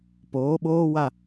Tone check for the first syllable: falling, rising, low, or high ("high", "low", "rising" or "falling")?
rising